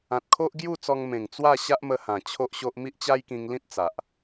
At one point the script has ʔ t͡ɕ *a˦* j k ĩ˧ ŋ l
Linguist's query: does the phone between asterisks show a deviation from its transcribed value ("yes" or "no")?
no